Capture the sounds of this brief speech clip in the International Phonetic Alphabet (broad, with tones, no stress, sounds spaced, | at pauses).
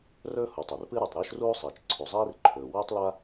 r ɵː˥ h u˩ tˤ ɵ˩ r p ɨ˥ ɾ u˩ tˤ ɾ ɵː˥ ʃ r uː˥ sˤ iː˩ t͡ʃ ǀʰ u˩ zˤ iː˥ r ǃʰ ɵː˩ w ɵː˥ tˤ l a˥